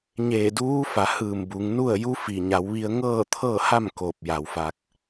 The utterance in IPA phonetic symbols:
ɲ eː˧˩ d uː˧˥ f a˩˧ h ɯː˧˩ m b u˩˧ ŋ n u˥˨ ə̯ j u˧˥ f i˩ ɲ a˩˧ w ʋ i˧ ə̯ ŋ ɤː˥˨ t̪ʰ ɤː˥˨ h a˥˨ m k oː˧˩ p̚ j a˩ w f a˧ k̚

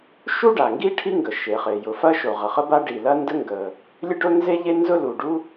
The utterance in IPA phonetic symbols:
ʃ u˥ ɖ a˩ ŋ ɡ i˥ ʈʰ i˥ ŋ ɡ ə˩ ʃ e˩ χ e˩ j ʊ˩ f ɐ˥ ʃ o˩ ʁ ə˩ χ ə˥ b a˥ ɖ i˩ l ɐ˥ n d ə˥ ŋ ɡ ə˩ | lʲ ə˥ ɖ ʊ˥ n z e˥ ʎ e˥ n z ʊ˥ l u˩ ɖ u˥

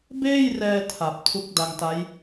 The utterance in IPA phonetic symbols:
b eː˥˩ j r ɛː˧ tʰ a˨˩ p̚ tʰ u˦˥ k̚ d a˧ ŋ t a˦˥ j

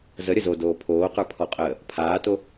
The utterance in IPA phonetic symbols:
z ə ɾʲ ə z o d oː pʰ oː q ə˞ pʰ ɔ qʼ əː | pʰ aː t o

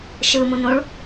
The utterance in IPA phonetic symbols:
ʃ ɯ m ũ n ũ ɭ

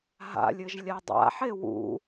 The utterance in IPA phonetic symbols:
ɦ a̰ lʲ ɘ ʒ lʲ a dˤ a̰ ħ e w ṵ

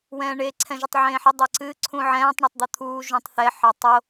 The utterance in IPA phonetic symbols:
w ɛ̃ː ɳ e ǀʰ ɛ̃ ʒ ə tˤ ʕ ẽː ħ ə dˤ ɤ ǀ ɨ ǀʰ ũ ʕ ɛ̃ː tˤ ɳ o tˤ d̪ o t̪ʰ uː ʒ ũ tˤ θ ɛ ħ ɑ tˤ o

